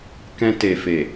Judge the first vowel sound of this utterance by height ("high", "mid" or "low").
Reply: mid